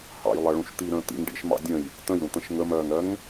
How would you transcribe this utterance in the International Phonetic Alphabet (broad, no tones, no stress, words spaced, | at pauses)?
hɑ̰jlˠʌɭũʃ t̪iɾə̃ː t̪ḭŋ ɖḭʃmɑ̰ dʲə̃j | tə̃jɾũt̪ə̃ʃ ŋəmɜːŋɾɜŋ